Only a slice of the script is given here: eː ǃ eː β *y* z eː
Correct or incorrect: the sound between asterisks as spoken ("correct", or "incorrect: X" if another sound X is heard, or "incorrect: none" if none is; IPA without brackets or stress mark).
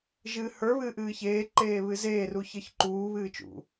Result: incorrect: ɨ